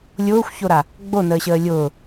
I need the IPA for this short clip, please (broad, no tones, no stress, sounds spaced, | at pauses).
lʲ ʊː xʷ ç o ɾ a | ɡ͡b o n əː ɕ əː lʲ ʊː